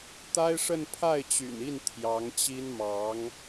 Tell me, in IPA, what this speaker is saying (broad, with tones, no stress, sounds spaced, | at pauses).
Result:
t̪ a˥ ɪ̯ ʂ ə˥˧ n pʰ a˥˩ ɪ̯ t͡ɕ y̰˨˩ n i˥˩ n t̪ʰ j ɑ˧˥ ŋ t͡ɕ i˥ n m ɑ˧˥ ŋ